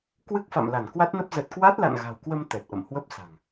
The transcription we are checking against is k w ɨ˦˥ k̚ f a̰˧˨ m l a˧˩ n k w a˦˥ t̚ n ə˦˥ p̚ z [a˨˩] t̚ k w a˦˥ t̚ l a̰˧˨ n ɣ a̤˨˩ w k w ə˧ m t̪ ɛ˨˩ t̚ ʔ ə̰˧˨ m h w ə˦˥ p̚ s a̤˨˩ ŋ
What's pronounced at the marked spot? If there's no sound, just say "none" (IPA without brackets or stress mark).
ə˨˩